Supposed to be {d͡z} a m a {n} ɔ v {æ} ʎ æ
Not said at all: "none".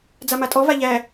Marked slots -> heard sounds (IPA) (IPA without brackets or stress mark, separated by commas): d͡z, tʼ, a